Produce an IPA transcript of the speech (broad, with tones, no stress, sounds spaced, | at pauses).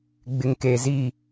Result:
ɡ͡b ɪ˨ ŋ k e˨ z i˦˨